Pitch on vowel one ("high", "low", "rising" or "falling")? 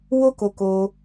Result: high